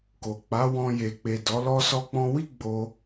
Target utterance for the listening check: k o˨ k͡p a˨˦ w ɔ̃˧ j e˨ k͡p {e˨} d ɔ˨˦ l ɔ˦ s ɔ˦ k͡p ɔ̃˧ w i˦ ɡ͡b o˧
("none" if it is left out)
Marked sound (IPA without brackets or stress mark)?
e˨